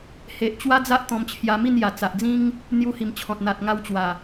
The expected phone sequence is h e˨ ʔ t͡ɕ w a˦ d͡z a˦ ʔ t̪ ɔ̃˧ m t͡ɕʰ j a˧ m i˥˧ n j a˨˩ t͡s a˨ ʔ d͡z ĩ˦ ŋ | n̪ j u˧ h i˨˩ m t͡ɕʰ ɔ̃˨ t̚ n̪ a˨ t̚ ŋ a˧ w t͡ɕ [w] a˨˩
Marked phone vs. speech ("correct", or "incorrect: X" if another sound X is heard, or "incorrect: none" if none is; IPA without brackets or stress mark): correct